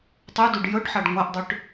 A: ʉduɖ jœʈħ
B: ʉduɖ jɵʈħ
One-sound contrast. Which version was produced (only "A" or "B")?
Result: B